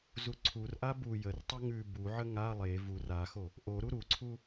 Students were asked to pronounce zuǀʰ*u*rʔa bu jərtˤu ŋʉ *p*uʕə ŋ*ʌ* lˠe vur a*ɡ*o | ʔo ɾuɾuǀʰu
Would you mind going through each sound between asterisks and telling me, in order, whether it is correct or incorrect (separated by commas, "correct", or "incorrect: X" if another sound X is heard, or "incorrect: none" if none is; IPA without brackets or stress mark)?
correct, incorrect: b, incorrect: a, incorrect: x